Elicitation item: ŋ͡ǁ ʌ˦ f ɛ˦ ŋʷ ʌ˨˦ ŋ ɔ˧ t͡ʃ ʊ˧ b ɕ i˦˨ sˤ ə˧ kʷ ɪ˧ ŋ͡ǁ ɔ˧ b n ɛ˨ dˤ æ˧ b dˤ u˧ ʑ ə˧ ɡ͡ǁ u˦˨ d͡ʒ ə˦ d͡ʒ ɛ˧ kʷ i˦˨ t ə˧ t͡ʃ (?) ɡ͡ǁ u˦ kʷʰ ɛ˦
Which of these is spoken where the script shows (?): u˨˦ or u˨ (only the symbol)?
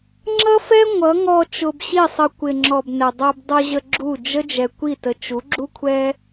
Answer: u˨˦